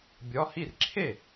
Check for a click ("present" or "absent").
present